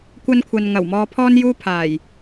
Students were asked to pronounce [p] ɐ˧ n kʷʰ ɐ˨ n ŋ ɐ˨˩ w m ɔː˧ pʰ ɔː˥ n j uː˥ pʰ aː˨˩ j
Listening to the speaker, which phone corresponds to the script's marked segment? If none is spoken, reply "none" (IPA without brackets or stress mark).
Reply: kʷ